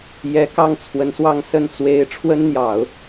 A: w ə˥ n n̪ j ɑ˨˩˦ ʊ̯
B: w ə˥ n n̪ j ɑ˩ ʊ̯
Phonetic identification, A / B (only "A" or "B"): A